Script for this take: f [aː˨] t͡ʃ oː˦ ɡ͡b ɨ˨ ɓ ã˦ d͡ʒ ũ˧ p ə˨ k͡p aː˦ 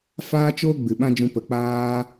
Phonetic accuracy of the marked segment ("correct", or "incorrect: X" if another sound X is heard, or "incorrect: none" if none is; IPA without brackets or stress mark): incorrect: aː˦